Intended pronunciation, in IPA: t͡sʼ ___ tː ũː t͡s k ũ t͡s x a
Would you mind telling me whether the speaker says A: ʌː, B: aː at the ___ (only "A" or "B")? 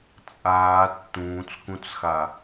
B